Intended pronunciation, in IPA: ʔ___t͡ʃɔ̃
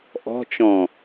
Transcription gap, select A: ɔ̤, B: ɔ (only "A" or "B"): A